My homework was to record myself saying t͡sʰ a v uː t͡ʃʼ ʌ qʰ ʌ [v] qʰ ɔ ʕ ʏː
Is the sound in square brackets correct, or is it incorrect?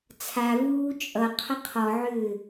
incorrect